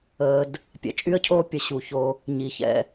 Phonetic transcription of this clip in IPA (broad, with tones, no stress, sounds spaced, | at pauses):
əː˧ d | pʲ ɛ̰˧ t͡ʃʼ y˦ ə̯ cʰ oː˦ pʲ ə˧ ɕ u˨ ç o˧ | ɲ i˨ ç ɛ̰˧